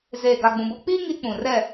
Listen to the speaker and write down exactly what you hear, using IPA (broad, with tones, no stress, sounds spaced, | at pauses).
z eː˨ ɡ a˨ ɡ͡b ũ˨ b o˦ k͡p iː˦ ŋ i˦ k͡p ũ˨ r ɛ˦˨